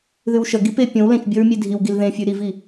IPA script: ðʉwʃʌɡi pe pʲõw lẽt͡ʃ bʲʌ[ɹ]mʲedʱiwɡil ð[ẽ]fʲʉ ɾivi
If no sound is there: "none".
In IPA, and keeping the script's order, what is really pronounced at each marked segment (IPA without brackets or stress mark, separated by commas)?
ɹ, ẽ